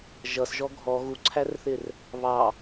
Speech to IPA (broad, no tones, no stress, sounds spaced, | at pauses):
ʒ ʌ s ʒ ɔ ɡʱ ɔ ɣ u ǀʰ æ r θ ɪ r | β ɑ